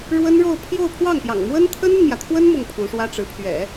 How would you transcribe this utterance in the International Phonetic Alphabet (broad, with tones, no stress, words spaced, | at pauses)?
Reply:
ɻwə˥nɻo˥˧ʊ̯ pʰjo˥˧ʊ̯pʰwɑ˥˩ŋpjɑ̰˨˩ŋ mwə˥n t̪ʰə˥nə˨nmjä˩t̪ʰwə˥n mʊ˥˩ŋpʰu˧˥ʂwä˥ʈ͡ʂɻ̩˧˥ pʰɥɛ̰˨˩˦